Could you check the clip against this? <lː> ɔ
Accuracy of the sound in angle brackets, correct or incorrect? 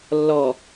correct